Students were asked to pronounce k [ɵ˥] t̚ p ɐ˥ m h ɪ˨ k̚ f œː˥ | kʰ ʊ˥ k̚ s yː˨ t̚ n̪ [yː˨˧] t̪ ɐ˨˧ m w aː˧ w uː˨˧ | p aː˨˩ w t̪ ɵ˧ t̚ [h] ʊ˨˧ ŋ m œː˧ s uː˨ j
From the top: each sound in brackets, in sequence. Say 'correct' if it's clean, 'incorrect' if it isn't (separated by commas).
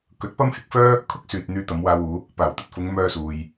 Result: incorrect, incorrect, incorrect